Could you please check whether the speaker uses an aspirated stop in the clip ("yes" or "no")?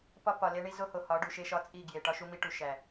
no